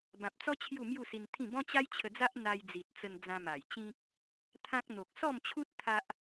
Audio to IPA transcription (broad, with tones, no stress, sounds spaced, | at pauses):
b ã˨ p̚ t͡s ɔ˦ t͡ɕʰ j u˥˧ m j u˥˧ s i˧ n t̪ʰ ĩ˥˧ b ɔ̃˦ t͡ɕ a˦ j t͡ɕʰ ə˧ d͡z a˦ ʔ n̪ a˧ j d͡z i˨ t̚ t͡s ə˧ n d͡z ã˧ m a˨˩ j t͡ɕ ĩ˦ k̚ | t̪ʰ ã˦ k̚ n̪ o˨ k̚ s ɔ˥˧ m t͡ɕʰ u˦ t̚ t̪ʰ a˦ ʔ